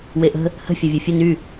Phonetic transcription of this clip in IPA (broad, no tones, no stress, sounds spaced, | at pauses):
w e ʔ ə̤ | h ə̤ fʲ a vʲ o fʲ ə n y